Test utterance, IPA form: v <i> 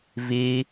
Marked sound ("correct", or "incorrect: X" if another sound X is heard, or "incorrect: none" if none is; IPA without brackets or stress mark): correct